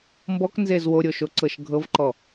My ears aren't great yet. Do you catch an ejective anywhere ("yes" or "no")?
no